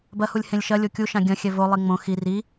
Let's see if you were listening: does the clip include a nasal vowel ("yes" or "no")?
yes